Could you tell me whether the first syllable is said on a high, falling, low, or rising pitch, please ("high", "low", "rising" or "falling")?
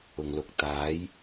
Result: low